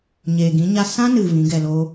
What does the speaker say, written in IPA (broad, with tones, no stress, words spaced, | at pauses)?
ɲeː˨ɡĩ˨˦ɲa˦ sã˦nɨ˨ vĩ˨˦ɡɛ˧ loː˦